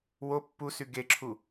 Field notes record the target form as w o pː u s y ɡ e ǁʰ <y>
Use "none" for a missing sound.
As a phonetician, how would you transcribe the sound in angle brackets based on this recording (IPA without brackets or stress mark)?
u